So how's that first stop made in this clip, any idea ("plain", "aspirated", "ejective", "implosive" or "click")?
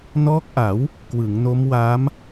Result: plain